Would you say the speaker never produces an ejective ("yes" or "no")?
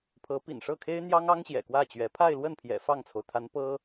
yes